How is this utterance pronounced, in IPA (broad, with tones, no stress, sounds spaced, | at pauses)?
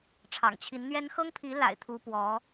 ʈ͡ʂʰ ɑ̰˨˩ ŋ t͡ɕʰ i˧˥ n n̪ ɥ ɛ˥ n x ɤ˥ ŋ pʰ i˧˥ l a̰˨˩ ɪ̯ t̪ʰ u˥ p w ɔ˧˥